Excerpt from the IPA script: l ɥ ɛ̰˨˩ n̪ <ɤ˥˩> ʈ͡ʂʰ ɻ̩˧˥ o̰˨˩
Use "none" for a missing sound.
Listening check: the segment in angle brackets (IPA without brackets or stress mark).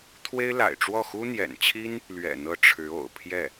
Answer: ɤ˥˩